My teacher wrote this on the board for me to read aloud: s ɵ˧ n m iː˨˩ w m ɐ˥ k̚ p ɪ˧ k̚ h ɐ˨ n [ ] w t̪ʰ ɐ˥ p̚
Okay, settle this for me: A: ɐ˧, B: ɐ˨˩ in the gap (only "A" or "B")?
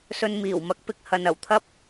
B